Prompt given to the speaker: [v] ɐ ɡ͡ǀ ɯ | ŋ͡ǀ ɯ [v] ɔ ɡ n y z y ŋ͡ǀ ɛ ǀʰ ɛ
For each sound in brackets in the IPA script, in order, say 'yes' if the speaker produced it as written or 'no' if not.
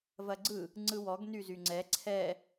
yes, no

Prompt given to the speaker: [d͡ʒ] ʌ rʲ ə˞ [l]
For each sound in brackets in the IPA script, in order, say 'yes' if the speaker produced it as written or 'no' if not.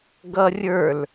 no, yes

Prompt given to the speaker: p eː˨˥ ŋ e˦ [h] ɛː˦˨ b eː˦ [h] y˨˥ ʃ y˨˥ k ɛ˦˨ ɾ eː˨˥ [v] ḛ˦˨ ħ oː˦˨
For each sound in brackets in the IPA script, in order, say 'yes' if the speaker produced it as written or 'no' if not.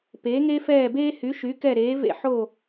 no, yes, yes

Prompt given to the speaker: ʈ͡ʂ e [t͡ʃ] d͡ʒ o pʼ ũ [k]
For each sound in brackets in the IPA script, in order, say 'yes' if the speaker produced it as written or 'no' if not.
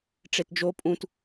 no, no

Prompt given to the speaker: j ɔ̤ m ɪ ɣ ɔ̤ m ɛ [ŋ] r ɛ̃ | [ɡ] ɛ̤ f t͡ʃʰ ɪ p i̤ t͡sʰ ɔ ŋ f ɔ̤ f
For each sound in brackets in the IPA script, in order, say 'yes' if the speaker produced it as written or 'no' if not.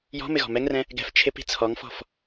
yes, yes

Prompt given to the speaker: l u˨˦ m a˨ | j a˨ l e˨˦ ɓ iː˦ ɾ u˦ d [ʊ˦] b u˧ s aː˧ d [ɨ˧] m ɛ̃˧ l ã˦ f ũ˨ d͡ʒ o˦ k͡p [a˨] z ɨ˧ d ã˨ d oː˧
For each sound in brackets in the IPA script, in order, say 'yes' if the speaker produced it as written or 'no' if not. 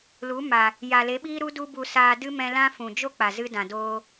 no, no, yes

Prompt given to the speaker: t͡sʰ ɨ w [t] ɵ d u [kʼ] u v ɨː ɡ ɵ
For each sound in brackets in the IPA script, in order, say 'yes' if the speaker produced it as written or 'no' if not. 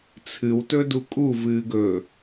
yes, yes

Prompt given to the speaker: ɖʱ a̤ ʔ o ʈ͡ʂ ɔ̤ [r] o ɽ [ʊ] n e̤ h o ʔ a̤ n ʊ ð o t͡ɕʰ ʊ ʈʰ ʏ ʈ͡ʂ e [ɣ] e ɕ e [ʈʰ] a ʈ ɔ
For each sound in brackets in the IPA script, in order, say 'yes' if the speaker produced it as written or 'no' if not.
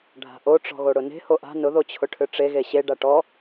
no, yes, yes, no

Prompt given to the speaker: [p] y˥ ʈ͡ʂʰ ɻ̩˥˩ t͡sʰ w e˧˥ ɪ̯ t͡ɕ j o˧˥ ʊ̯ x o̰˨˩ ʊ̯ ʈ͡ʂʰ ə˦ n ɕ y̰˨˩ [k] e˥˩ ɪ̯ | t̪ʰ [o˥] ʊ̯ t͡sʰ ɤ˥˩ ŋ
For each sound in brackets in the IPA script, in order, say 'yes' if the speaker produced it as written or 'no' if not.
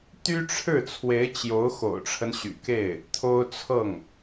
no, yes, yes

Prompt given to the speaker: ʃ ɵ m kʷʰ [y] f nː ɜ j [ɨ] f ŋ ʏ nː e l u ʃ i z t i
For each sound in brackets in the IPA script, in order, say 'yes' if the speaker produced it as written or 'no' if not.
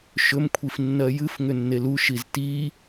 no, yes

